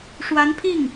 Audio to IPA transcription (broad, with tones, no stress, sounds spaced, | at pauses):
ʂ w a˧˥ n pʰ i˥˩ ŋ